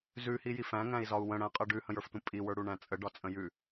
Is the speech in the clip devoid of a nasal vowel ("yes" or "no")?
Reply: no